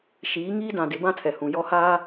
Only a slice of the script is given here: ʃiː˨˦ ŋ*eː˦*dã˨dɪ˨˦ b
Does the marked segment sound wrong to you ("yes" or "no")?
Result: yes